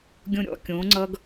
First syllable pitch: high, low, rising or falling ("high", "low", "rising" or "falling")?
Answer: low